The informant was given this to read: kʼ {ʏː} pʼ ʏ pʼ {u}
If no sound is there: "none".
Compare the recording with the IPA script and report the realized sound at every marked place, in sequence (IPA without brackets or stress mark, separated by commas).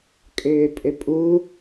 ʏː, u